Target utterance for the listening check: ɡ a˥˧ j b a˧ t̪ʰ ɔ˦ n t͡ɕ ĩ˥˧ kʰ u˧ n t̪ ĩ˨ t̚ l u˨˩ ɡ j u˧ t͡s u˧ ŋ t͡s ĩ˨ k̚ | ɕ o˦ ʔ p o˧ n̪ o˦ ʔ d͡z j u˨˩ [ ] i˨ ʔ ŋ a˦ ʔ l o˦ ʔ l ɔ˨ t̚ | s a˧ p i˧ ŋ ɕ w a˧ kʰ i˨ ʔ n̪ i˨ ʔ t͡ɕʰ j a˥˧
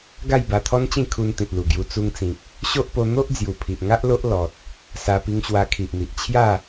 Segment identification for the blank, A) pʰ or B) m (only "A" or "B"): A